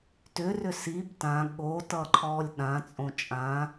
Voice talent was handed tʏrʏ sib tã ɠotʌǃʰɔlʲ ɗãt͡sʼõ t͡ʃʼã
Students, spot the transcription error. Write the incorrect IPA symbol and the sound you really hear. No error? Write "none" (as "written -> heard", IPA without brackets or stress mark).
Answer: none